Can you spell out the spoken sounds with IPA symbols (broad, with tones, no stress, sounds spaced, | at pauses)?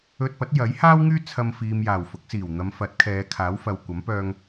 ɵ˧ t̚ p ɐ˨˥ t̚ j ɐ˨˥ j h aː˥ w ŋ yː˥ t͡sʰ ɐ˧ m f iː˨ m j aː˨˩ w f ʊ˨˥ k̚ s iː˨˩ w n̪ ɐ˨˧ m f ɐ˨˥ t̚ kʰ ɛː˨˧ kʰ aː˨˥ w f ɐ˨ w kʷ ɐ˨˥ m p œː˧ ŋ